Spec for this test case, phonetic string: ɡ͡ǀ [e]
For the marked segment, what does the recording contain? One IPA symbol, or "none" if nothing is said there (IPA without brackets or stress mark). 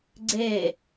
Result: e